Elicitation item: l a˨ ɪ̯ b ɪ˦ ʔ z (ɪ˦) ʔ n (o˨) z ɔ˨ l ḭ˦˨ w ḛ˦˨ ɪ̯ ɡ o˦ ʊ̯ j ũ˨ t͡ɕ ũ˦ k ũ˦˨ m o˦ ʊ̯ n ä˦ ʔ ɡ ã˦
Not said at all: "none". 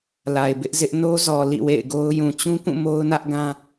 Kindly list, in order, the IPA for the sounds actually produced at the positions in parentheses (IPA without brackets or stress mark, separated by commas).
ɪ˦, o˦